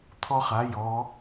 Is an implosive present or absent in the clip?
absent